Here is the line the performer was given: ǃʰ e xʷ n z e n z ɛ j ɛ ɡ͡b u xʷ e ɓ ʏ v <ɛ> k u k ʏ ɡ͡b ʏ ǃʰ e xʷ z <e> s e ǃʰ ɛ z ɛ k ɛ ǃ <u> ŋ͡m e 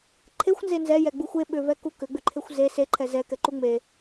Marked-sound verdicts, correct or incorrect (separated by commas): correct, correct, correct